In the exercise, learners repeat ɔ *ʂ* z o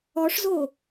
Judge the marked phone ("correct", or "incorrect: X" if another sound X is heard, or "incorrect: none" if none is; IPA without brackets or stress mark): correct